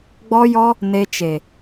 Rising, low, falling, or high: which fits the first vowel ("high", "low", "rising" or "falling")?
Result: high